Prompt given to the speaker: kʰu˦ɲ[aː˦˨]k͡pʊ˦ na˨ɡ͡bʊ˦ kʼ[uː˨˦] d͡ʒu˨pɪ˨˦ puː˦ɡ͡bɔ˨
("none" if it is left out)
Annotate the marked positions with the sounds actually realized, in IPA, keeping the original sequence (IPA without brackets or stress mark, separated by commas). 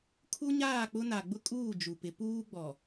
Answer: aː˦˨, uː˦˨